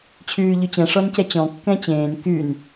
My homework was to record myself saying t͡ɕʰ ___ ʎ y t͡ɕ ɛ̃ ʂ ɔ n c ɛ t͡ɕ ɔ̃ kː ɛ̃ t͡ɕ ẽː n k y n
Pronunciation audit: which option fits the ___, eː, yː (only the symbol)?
yː